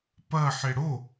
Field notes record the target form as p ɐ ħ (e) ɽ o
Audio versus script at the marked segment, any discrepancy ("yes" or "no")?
no